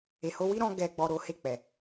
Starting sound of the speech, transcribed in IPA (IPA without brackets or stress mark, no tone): e